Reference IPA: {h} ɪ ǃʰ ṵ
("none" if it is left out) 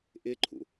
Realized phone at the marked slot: ʔ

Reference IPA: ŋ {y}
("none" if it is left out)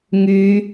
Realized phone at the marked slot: y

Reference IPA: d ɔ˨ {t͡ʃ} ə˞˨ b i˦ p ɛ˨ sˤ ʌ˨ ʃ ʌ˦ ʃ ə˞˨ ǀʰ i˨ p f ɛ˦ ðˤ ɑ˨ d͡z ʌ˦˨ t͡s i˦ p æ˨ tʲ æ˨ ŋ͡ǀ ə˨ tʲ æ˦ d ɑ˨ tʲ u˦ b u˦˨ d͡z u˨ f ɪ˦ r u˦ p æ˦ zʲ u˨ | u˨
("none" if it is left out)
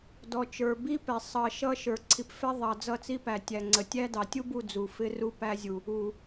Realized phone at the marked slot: t͡ʃ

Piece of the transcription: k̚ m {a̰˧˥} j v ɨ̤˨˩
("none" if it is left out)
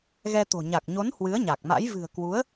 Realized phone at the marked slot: a̰˧˥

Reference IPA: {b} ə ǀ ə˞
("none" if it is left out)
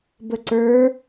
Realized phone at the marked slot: b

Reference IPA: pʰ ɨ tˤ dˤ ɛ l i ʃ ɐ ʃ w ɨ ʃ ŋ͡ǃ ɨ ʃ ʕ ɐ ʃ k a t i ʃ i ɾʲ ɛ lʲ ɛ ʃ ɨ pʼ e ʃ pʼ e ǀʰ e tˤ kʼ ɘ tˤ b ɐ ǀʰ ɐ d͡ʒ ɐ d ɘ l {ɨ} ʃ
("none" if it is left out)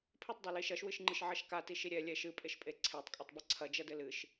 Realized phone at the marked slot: ɨ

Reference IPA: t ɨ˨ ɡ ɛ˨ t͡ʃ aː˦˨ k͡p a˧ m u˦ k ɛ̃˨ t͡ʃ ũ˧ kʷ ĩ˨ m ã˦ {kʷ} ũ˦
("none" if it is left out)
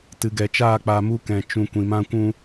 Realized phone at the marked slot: kʷ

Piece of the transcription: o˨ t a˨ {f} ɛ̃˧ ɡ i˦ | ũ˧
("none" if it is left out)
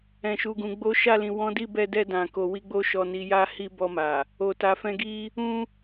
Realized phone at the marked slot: f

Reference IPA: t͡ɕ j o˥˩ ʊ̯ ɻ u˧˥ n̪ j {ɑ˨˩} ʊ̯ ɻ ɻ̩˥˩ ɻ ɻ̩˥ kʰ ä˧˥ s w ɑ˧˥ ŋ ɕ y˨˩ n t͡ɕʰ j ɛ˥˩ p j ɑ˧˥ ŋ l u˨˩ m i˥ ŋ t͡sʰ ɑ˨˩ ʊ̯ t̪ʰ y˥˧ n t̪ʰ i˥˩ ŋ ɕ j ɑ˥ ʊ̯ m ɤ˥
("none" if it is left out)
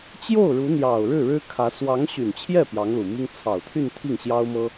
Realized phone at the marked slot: ɑ˨˩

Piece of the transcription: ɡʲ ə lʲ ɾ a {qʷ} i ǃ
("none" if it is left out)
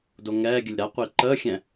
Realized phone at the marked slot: qʷ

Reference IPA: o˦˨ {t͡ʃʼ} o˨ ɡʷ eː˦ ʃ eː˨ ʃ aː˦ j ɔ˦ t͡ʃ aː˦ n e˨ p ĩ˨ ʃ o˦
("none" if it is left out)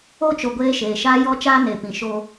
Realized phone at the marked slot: t͡ʃ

